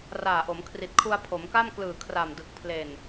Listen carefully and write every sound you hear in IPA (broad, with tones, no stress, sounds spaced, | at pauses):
r aː˨˩ ʔ o˩˦ m kʰ r i˨˩ t̚ kʰ u˧ a̯ pʰ o˩˦ m k a˥˩ m k l ɯː˨˩ kʰ r a˨˩ m d ɯ˨˩ k̚ pʰ l e˨˩ n